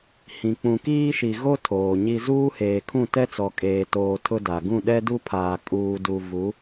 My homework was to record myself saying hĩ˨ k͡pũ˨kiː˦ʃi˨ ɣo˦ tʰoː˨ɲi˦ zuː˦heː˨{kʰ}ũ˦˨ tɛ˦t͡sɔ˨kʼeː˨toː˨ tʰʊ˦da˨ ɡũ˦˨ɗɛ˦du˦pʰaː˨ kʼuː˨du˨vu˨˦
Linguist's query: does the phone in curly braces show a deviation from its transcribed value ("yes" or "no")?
no